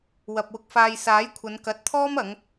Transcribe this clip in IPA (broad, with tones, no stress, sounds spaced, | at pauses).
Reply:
w ɐ˨ p̚ w ʊ˧ k̚ f aː˧ j s aː˨˥ j kʷʰ ɐ˨˧ n k ɐ˨˥ t̚ t̪ʰ ɔː˥ m ɐ˨˥ ŋ